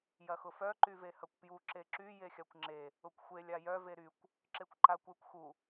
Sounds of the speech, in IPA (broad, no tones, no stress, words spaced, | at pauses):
jɐxʊfœ ǃyvehɐkʷpju ǁeǁy jexʲakʷŋ͡ǁe | ʊkʷxʷelʲ ajœ veɾykʷ | ǁekʷǃakʷ ekʷ xu